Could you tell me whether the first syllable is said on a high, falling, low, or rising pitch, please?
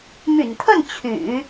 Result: low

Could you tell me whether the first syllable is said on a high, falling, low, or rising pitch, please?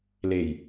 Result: low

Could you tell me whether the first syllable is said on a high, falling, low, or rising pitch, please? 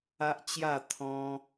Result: high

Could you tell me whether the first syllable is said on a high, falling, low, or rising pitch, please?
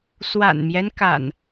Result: low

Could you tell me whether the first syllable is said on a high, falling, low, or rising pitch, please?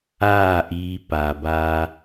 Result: falling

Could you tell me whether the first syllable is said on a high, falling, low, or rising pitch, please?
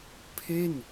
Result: falling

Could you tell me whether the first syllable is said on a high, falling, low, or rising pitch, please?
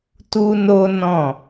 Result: high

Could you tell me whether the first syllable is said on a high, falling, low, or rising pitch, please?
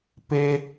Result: high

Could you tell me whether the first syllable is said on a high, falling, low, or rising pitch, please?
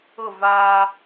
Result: falling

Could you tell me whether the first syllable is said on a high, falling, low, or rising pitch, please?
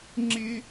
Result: high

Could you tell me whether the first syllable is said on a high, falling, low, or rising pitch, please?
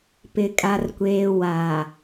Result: low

